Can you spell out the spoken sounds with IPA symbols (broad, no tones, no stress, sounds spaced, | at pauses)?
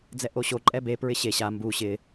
d͡z ɛ ʔ o ɕ o ǃʼ ɛ b e p ɹ ɪ ɕ e ɕ a m b u ɕ ɪ